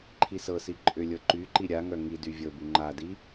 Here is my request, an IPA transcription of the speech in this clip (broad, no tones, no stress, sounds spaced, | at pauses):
ǃʰ i s ɤ s i ǃʼ ʏ lʲ ɤ ǃ y ǃ i ɾʲ a ŋ œ ŋ i d y vʲ ɤ b y ŋ͡ǃ a d i